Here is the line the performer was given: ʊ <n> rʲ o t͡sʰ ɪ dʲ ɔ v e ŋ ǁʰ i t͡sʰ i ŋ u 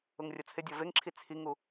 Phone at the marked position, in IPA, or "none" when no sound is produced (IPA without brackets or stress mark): ŋ